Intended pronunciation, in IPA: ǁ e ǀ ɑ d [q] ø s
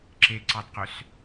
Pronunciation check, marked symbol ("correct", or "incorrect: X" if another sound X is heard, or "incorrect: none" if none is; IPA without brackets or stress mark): correct